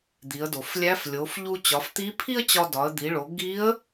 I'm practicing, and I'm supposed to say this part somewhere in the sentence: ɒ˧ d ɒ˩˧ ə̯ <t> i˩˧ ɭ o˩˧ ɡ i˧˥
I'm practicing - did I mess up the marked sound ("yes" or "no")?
yes